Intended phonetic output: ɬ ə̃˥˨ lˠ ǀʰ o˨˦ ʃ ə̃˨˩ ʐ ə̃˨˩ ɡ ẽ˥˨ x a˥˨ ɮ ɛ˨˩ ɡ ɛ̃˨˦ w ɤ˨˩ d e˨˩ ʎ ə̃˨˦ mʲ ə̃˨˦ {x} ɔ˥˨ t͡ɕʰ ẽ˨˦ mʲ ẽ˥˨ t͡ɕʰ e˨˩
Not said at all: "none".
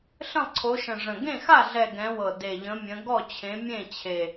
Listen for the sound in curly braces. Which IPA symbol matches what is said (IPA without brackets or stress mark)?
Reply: ɡ